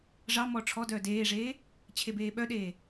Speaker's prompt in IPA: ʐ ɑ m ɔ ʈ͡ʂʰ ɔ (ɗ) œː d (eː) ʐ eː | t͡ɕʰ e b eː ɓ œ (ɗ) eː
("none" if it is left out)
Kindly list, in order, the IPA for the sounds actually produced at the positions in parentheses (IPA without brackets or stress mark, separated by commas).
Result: d, eː, ɗ